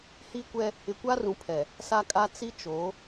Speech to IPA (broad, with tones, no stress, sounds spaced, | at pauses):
h i˦ kʷ ɛ˦ | ɪ˨ kʷ a˦ r ũ˨ pʰ ɛ˨ | s a˦ kʼ a˦ t͡s i˦ t͡ʃ o˨˦